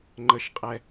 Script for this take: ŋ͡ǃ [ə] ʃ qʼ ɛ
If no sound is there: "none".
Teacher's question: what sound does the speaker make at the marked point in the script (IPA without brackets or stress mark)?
ə